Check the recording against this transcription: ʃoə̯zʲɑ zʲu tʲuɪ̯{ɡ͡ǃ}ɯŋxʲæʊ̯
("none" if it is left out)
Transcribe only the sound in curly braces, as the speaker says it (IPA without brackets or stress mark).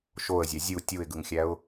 ɡ